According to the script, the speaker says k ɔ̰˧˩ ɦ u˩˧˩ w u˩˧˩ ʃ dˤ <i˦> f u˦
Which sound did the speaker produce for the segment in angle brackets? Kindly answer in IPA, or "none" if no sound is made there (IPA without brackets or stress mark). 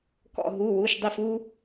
i˧˩